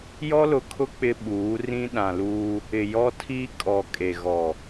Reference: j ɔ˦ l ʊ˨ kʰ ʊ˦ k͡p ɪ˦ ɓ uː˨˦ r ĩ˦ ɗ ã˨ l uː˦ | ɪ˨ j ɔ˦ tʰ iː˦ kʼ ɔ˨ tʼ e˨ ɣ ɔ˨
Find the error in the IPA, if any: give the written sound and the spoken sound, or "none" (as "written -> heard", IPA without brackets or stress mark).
tʼ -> kʼ